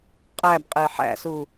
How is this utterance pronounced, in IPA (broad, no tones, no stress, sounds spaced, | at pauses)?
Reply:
qʼ æ b qʼ e ħ æ̰ s u